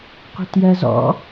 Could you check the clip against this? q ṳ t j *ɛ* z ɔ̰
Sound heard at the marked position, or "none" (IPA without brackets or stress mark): ɜ